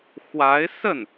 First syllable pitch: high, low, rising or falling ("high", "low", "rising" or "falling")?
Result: rising